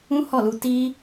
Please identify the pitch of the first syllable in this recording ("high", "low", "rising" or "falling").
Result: high